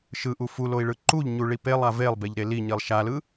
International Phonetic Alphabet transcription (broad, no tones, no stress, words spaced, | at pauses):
ʃɯʔu fuloi̯ɭɯ ǃuʎɲuɭi pelˠa velˠbeʎɾe liɲilˠ ʃalɯ